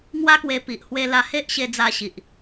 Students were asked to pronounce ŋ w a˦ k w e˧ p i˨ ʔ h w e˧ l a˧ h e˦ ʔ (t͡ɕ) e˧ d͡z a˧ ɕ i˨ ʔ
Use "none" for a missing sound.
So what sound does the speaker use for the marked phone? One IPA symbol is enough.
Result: ɕ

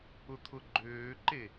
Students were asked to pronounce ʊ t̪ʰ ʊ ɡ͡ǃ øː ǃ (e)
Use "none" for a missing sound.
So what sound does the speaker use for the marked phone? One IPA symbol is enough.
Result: e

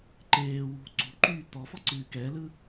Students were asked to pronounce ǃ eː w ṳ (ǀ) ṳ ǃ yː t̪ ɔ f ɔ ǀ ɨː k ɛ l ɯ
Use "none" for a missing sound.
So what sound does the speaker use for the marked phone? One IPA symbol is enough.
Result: ǀ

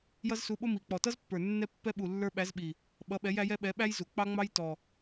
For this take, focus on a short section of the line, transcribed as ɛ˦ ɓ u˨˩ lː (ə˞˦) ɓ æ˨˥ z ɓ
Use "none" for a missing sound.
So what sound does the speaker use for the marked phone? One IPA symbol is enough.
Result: ə˞˦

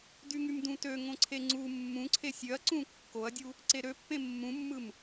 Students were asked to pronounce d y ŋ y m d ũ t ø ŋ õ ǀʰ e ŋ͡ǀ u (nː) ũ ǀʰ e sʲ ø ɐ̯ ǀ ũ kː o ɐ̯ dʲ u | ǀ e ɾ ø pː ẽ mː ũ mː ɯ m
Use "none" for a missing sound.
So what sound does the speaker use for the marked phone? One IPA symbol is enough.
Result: mː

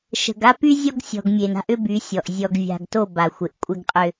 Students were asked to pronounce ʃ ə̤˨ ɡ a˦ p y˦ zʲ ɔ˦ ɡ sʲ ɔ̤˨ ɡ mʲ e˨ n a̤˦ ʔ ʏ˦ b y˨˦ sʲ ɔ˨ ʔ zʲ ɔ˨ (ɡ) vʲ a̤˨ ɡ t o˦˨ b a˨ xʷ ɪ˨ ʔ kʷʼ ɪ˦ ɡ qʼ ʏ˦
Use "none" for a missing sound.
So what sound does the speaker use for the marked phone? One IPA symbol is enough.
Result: ɡ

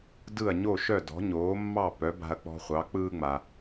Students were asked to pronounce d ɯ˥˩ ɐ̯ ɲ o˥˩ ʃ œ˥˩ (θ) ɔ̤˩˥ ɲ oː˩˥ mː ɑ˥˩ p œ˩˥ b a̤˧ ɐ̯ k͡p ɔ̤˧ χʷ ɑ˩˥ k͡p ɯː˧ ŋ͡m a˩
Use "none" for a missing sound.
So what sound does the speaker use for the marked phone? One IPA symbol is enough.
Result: d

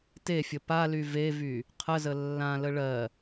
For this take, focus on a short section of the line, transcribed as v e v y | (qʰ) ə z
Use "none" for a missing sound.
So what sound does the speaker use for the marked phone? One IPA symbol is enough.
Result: qʰ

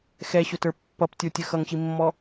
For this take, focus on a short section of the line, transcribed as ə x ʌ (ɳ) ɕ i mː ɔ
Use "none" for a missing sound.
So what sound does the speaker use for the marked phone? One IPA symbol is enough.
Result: ŋ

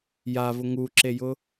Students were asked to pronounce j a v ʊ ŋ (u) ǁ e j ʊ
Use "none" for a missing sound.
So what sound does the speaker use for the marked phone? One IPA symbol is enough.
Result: u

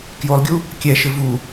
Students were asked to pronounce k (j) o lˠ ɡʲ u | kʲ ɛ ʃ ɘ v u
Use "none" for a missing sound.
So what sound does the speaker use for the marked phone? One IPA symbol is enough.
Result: j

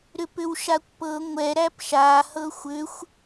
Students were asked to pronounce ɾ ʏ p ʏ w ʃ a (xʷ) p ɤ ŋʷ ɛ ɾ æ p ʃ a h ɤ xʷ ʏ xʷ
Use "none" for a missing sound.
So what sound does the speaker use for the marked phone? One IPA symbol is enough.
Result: kʷ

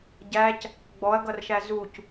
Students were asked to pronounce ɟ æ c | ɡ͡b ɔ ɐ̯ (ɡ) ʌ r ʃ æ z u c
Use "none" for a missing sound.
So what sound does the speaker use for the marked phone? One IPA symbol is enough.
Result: ɡ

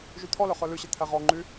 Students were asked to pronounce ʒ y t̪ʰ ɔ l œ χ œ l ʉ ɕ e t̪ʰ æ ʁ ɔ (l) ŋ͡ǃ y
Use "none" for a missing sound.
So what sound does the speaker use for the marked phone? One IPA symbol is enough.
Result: none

